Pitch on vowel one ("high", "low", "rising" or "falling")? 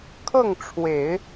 falling